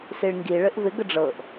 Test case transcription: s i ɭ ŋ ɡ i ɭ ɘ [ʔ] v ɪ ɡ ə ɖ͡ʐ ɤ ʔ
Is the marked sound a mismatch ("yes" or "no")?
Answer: no